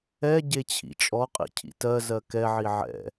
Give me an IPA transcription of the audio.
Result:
ɛ ɟ e t͡ɕʰ ḭ t͡ʃʼ ɔ qʼ ḭ cʰ ḭ t ɜ z ɜ k ɛ ʕ i ʕ ɛ̰

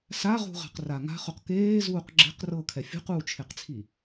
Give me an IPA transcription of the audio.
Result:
s a ʁ ṳ ʁ a̤ q r a ŋ a̤ χ o q k eː z uː q ɡ͡ǁ e̤ q r ɤ kʰ ɛ fʲ ṳ q uː t͡ʃʰ e q t͡sʰ i

